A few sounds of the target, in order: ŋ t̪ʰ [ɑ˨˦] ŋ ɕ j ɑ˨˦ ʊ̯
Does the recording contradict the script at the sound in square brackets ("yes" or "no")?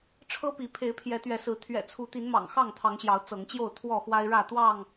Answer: no